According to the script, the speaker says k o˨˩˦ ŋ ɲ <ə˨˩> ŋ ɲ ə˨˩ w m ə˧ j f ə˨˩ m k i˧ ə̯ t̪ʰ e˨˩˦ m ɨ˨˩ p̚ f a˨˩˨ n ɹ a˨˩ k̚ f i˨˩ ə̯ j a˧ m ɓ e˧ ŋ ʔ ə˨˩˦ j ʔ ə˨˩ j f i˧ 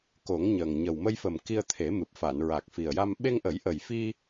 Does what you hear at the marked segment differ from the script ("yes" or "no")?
no